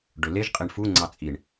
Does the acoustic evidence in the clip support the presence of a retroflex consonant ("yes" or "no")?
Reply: yes